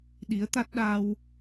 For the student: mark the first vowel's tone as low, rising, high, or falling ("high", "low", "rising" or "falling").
rising